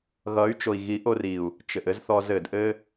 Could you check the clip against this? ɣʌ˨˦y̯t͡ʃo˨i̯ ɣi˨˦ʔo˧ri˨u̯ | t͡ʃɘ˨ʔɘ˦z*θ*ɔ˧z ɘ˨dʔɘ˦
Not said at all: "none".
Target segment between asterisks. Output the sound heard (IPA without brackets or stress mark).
θ